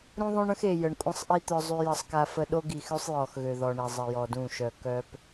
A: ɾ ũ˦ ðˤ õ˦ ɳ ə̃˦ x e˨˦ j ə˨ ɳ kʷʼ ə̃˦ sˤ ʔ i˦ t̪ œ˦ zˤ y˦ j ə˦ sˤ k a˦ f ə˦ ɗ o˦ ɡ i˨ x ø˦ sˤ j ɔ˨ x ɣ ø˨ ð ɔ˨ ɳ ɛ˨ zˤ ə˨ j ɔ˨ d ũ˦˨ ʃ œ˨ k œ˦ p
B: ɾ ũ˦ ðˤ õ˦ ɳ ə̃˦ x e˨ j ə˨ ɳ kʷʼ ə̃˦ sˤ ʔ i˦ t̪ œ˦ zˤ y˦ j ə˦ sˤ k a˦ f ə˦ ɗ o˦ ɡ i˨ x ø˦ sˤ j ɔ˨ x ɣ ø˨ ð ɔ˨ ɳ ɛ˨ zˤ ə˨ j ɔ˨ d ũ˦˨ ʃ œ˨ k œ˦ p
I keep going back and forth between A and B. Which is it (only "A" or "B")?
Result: B